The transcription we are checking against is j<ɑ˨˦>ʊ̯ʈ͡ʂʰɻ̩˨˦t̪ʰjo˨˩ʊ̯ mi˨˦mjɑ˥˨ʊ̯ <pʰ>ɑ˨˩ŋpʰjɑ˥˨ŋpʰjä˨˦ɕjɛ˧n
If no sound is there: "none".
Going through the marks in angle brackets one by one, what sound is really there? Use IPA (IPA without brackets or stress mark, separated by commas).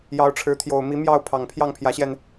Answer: ɑ˨˦, pʰ